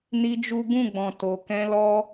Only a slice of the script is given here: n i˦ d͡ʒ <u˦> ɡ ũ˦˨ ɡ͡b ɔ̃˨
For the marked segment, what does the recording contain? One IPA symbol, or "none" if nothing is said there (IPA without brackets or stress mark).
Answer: u˦